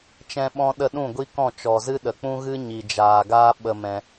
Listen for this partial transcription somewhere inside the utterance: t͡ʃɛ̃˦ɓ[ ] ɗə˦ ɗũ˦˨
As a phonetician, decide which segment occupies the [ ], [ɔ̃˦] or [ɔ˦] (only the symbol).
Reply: ɔ̃˦